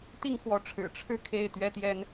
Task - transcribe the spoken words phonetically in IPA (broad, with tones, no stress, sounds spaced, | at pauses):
t̪ i˥˩ ŋ x w ɔ˧˥ ʈ͡ʂʰ ɻ̩˨˩ ʈ͡ʂʰ ɻ̩˥˧ kʰ e˥˩ ɪ̯ t̪ ɥ ɛ˥ t̪ j ɛ˥ n